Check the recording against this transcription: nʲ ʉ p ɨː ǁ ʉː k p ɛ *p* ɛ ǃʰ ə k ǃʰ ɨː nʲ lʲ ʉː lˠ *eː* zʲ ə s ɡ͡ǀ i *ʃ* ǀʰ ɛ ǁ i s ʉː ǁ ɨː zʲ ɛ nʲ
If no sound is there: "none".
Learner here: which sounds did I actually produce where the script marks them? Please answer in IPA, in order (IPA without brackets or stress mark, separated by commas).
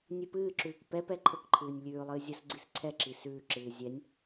p, ɨː, s